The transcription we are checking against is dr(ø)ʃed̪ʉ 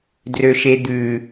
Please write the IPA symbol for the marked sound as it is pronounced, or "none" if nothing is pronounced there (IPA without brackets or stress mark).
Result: ø